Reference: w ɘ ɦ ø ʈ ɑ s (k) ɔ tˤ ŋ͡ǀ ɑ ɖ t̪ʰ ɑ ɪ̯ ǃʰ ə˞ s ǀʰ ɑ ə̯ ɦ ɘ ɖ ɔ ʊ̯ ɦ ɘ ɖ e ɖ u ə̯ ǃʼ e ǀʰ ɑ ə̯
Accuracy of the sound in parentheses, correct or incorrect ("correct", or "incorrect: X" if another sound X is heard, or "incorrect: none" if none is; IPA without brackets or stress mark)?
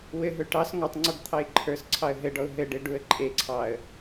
incorrect: ŋ